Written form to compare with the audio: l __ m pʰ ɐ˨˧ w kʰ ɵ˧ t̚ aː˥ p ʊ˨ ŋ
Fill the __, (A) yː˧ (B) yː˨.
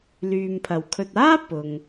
B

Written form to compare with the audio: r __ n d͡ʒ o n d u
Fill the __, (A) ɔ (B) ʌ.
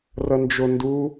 B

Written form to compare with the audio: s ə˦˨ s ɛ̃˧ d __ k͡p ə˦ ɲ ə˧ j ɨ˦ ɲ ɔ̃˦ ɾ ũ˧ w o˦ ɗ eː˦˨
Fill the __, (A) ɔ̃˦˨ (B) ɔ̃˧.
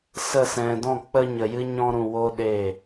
A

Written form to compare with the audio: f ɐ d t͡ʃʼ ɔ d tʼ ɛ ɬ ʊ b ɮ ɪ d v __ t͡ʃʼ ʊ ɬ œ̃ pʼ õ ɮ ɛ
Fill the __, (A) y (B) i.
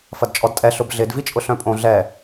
B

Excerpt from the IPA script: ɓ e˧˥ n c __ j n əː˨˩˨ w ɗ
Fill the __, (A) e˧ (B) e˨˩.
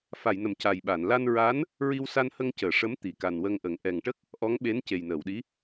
B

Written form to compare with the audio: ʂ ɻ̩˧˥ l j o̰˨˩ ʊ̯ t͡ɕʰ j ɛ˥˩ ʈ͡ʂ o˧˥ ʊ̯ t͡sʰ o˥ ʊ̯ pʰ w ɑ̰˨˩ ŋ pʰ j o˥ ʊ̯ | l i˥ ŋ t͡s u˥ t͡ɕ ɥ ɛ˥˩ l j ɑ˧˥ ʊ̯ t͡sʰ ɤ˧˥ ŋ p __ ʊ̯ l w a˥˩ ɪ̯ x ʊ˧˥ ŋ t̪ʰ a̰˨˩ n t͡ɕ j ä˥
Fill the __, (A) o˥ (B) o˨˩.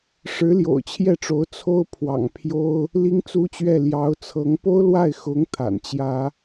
A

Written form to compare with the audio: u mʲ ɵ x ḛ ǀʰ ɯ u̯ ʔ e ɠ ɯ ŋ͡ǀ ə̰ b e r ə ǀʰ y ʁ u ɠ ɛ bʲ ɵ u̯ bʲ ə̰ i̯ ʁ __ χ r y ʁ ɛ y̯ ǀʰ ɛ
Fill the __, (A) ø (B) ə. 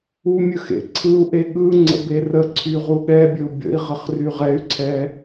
B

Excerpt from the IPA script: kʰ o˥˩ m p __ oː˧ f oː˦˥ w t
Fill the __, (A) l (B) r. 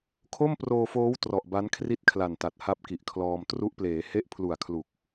B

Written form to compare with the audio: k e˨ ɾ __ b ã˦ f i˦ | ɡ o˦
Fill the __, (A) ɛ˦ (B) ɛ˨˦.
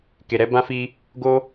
B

